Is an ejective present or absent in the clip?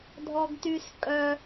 present